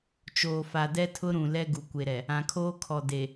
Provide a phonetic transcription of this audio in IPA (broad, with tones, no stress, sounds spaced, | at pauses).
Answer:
t͡ʃ oː˨ f a˨ d ɛ˦ tʰ ʊ˦ ɾ ũ˨ l ɛ˦ ɡ u˨ kʷ e˨ ɾ ɛ˨ | ã˨ kʰ oː˦ kʰ ɔ˨ d e˨